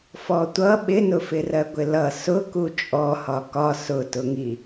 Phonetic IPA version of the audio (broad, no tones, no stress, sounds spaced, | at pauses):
f ɔ tʷ ʌ ɓ ɪ n ʊ f ɪ r ɜ ɡʷ ɪ l ʌ s ʊ k u t͡ʃʼ ɔ h ɒ k ɒ s ʊ t ʊ ŋ i